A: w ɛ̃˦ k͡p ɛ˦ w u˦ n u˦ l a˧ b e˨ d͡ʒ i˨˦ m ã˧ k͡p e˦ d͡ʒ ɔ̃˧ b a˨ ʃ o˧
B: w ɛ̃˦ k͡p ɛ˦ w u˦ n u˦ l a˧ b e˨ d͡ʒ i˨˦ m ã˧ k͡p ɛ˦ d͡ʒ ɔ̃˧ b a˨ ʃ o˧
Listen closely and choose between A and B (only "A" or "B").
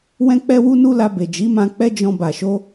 B